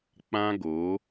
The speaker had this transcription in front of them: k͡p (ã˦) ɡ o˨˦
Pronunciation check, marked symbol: correct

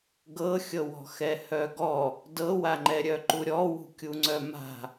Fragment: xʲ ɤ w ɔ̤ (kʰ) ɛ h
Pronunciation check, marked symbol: incorrect: x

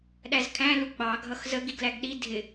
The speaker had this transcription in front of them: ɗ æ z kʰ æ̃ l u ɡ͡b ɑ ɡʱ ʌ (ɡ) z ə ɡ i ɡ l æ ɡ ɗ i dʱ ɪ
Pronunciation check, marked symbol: incorrect: x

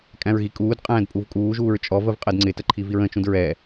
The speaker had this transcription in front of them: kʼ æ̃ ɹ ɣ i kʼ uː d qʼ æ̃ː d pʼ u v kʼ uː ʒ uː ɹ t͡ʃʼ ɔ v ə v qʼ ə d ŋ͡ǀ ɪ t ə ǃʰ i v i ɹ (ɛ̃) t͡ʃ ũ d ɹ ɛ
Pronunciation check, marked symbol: incorrect: ə̃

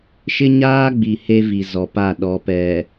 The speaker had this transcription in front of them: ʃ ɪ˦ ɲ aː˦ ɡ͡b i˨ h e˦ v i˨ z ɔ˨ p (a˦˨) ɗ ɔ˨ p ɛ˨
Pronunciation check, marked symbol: correct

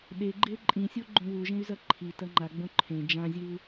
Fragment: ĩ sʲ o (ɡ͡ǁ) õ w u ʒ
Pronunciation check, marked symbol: incorrect: ɡ͡ǃ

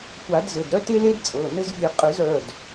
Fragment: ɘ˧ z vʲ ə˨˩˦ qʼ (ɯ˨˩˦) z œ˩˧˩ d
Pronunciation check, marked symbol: correct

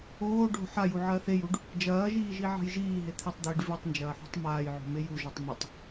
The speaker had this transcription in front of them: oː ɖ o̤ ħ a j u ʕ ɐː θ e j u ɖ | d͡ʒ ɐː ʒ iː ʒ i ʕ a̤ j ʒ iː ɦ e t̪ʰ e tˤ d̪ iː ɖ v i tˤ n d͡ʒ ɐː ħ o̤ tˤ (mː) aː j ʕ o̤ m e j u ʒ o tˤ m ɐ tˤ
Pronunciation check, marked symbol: incorrect: m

